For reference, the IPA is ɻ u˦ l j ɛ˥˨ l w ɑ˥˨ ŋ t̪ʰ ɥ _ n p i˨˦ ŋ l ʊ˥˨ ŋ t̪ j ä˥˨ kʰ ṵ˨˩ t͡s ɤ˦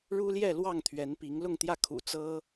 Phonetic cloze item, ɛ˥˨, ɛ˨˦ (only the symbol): ɛ˨˦